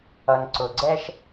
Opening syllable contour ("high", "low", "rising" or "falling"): low